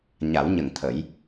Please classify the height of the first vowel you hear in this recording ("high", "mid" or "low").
low